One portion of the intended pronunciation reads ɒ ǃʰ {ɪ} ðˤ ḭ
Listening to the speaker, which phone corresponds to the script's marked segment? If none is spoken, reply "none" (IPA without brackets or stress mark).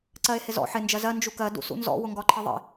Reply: ɪ